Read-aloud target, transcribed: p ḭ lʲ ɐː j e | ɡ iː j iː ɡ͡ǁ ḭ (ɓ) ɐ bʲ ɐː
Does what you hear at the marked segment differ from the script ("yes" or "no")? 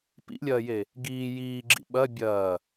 no